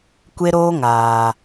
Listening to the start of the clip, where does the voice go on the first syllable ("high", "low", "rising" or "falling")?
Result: high